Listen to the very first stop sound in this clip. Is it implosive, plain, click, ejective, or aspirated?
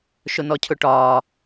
aspirated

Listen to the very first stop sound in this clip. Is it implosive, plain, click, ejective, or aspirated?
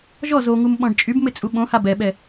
implosive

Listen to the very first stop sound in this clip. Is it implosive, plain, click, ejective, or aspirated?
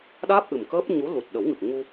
implosive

